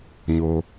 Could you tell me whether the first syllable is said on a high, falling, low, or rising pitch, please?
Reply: low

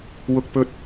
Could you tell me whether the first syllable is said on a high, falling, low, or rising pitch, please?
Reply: low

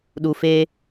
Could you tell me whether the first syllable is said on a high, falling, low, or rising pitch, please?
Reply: low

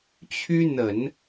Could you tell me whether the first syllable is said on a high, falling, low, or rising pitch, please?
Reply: high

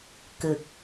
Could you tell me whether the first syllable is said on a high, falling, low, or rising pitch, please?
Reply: low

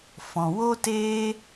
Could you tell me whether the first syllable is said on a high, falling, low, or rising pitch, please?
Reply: low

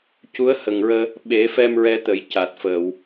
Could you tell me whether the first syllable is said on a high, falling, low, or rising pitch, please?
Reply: rising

